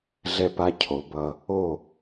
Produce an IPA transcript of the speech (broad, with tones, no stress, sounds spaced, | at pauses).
ɮ ɛ˧ p a˧ cʰ o˨˦ b ʌ˧ | o˦˨